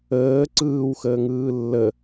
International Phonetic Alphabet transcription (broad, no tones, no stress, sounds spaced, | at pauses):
əː ǀ ɯː w x əː ŋ ɯː lː ə